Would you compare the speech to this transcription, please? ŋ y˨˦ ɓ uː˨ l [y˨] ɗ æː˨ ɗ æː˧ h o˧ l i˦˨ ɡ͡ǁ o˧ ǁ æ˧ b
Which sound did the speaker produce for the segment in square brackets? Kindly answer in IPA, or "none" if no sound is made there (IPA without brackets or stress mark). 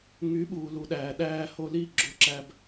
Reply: u˨